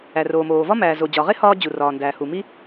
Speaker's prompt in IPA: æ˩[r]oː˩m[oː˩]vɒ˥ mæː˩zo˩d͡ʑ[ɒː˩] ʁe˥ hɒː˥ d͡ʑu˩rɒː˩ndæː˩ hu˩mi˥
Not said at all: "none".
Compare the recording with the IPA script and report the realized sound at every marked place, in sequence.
r, oː˩, ɒ˩

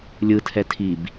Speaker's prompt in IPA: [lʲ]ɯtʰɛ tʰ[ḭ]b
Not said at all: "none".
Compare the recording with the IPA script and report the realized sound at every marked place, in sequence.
lʲ, i

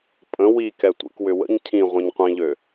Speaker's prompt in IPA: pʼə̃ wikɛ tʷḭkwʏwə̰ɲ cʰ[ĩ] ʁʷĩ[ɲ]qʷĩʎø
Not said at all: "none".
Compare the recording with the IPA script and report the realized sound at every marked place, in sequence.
ĩ, ɲ

